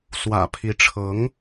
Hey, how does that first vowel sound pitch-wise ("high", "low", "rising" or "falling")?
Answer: low